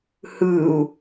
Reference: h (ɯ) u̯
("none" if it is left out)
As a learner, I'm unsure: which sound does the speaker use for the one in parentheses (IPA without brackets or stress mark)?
ɯ